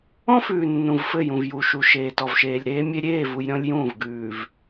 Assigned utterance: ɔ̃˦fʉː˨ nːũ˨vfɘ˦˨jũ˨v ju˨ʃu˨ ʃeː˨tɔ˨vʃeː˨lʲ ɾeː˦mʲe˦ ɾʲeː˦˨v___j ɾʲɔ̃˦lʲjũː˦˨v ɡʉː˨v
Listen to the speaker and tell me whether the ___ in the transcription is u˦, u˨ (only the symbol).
u˨